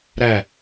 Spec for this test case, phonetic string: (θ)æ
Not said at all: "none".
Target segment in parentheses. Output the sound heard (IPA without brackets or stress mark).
ɾ